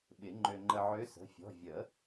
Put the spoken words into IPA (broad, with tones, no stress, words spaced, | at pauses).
ɓɪ˨˩˦ŋ͡ǃø˧ŋ͡ǃə˧ʕø˧˥ sə̤˩˧˩fʲɔ̤˩˧˩ vʲə˨˩˦